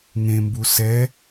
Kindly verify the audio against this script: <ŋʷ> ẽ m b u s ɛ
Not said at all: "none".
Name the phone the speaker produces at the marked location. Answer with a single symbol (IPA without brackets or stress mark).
ŋ